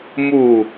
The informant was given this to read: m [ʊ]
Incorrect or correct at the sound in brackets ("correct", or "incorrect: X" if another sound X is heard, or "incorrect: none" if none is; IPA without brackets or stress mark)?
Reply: incorrect: u